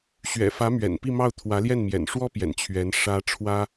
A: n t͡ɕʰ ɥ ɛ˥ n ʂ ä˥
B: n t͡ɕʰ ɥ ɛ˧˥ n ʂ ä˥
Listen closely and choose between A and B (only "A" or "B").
B